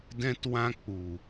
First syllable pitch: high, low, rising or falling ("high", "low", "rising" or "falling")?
high